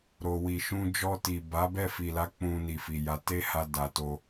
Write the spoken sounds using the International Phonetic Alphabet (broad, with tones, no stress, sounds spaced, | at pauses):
ɾ o˧ w i˧ ʃ ũ˦ d͡ʒ ɔ˧ t i˨ b a˨˦ b ɛ˦˨ f i˨ l a˨˦ k͡p ũ˧ n i˨ f i˨ j a˧ t e˦ h a˧ d a˨ t o˧